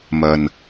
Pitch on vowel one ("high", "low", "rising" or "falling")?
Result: low